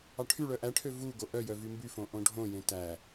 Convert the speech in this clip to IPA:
ɑ ʈʰ y ɭ œ ʔ æ ʈʰ ø v u ɡ o ʔ œ j œ v y m b y f õ ʔ õ ɖʱ õ j ẽ t æ

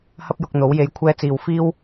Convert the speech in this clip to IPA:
h ɐ˥ p̚ j ʊ˧ k̚ n̪ o˨˥ w j e˧ j kʷʰ ɛː˧ t͡s iː˨ w f iː˥ w

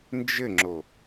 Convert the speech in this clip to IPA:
n d͡ʒ ɘ ŋ͡ǁ o

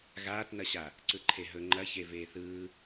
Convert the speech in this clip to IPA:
ɣ aː t n ɐ ɕ a | ǀ ɯ ǃʰ e ɦ ɵ ŋ͡ǃ ɐ ç e v eː θ ɯː

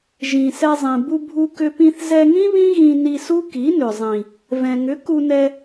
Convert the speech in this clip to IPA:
ʒ ĩ˨ s ɛ˧ zˤ ĩ˨ b u˧ bʱ u˧ k ʏ˧ p ĩ˧ θ z ɛ˧ ŋ ĩ˦ β ĩ˦ ɣ ĩ˧ n i˧ s u˦ k i˨˦ n ʏ˨ zˤ ĩ˨ | v ɛ̃˨ ŋ ʏ˨˦ k u˧ n ɛ˧

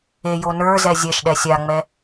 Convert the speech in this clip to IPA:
e j o n ə˞ z ɛ zʲ ɛ ʃ ɗ ɛ sʲ a ŋ͡m ɛ

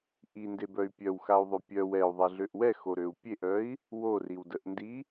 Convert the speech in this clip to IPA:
ʔ i n d e b œ y̯ pʲ œ w x a u̯ ðˤ ø pʲ œ w ɛ u̯ ðˤ ɛ ɮ ø ʔ w ɛ x o ɾ ø u̯ pʲ e ʔ œ i̯ | w o r i w d ə ʔ n d i

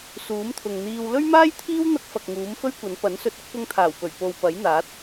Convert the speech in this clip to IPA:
s uː˨˥ m t̪ʰ ʊ˨ ŋ n̪ iː˧ w l ɵ˥ ɥ m aː˥ j t̪ʰ iː˥ w n̪ ɐ˥ k̚ f ɐ˨ k̚ ŋ uː˨˥ m f ɵ˥ ɥ kʷ ɐ˨˥ n p ɐ˨˥ n s ɵ˧ t̚ ʊ˨˥ k̚ p ʊ˧ ŋ t̪ʰ aː˨˩ w p ɵ˨˩ ɥ p o˨ w p ɐ˨˥ j n̪ aː˨˥ t̚

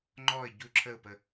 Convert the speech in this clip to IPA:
ŋ͡ǃ ɔ ɪ̯ ɟ u ǁʰ ə ʊ̯ p ə

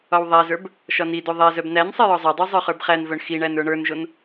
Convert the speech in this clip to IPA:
ɒ w ðˤ æ z ə˞ b | ʃ ɒ n i d o ðˤ ɛ z œ b n æ n sˤ ɛ j ɒ zˤ œ dˤ o zˤ ə˞ χ ə˞ b χ æ n v œ ɳ x i ɳ æ n ə˞ ɳ ə˞ n ʒ o n

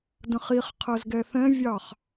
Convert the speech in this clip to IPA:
d ə̃ χ i χ qʰ ɜ z ɡ ɛ θ ɛ̃ vʲ ɑ χ

